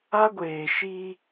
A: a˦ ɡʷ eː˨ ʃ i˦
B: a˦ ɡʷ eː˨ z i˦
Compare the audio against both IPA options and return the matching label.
A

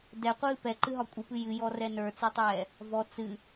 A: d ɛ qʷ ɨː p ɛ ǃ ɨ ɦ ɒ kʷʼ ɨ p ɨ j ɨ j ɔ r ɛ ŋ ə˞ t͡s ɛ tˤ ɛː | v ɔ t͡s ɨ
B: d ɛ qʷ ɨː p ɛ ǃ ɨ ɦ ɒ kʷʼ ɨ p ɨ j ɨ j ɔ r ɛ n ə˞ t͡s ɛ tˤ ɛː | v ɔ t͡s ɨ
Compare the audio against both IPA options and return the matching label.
B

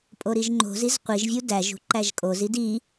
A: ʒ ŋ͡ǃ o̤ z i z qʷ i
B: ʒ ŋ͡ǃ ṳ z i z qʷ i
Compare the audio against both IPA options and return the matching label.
A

